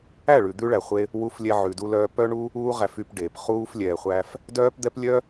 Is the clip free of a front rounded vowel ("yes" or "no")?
no